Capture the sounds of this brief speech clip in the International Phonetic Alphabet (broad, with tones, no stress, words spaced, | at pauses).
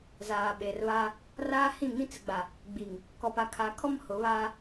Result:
zaː˨ɓe˨rβa˦ | raː˦hĩ˦˨ ŋĩ˦t͡sɪ˨ɡ͡ba˨ | ɡ͡bi˨ŋ | kɔ˨pa˨kʰaː˨kʰɔ˦m hʊ˨˦βaː˦